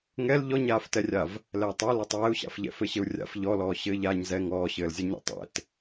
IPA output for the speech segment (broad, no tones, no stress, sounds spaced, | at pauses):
ŋ ɛ l ʎ ɔ ɲ aː f t ɛ rʲ a v | l ɛː tˤ ɛ l a tˤ w ɛ u̯ ɕ a̰ f ʎ ɛ̰ f ɘ ɕ ɘ u̯ rʲ a̰ f ʎ ɔ l ɔː ɕ ɘː ʎ aː ɲ z ɛ ŋ ɔː ɕ ɘː l zʲ a ɲ ɛ̰ tˤ ɛ̰ t